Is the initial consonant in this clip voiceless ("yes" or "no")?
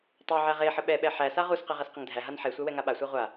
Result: yes